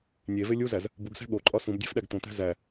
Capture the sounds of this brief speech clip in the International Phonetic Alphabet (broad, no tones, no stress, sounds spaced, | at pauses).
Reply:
nʲ e v e lʲ u z æ z | b u ɡ s æ̤ ɠ o ǃʼ ɒ s ũ b dʲ æ̤ f ɗ æ ɡ t̪ õ t̪ æ̤ z æ